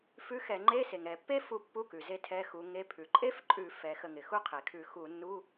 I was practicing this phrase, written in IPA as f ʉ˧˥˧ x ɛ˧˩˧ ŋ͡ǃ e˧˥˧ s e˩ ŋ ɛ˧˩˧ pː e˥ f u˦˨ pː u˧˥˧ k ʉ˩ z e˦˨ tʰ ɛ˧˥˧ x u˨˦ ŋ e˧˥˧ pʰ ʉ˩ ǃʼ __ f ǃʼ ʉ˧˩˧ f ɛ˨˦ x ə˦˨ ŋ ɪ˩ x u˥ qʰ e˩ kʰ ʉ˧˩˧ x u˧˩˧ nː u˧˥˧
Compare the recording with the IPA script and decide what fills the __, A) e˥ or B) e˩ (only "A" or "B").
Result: A